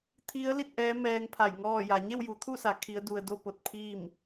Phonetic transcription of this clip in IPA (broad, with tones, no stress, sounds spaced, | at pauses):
t̪ʰ i˧˥ ə̯ l i˥˨ t̚ ʔ ɛː˧˥ m ɛː˧ ŋ pʰ a˧˩ j ŋ ɔː˥˨ j a˩˧ ɲ e˥˨ w j u˩˧ t̪ʰ u˥˨ s a˩˧ kʰ i˧˥ ə̯ d u˧ ə̯ d o˥˨ p o˧ t̚ pʰ iː˥˨ m